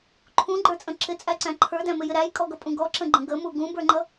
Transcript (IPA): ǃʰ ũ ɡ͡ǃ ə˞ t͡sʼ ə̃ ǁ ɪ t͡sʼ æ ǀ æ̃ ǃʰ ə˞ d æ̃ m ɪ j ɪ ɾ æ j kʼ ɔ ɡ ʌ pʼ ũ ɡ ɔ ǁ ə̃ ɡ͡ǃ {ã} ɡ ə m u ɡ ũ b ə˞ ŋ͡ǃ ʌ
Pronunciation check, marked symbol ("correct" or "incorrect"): incorrect